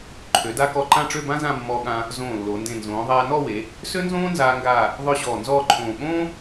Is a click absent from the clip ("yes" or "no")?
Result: no